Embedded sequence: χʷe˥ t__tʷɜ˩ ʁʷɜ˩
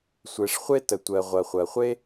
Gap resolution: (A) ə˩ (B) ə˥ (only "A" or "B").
A